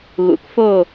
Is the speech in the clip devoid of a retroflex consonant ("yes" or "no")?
yes